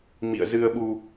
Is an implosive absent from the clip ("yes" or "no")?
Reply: no